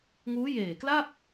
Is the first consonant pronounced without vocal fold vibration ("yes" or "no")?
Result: no